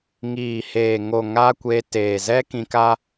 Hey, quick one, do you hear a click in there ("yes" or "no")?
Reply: no